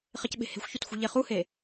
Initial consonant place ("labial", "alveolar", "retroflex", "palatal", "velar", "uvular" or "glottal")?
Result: uvular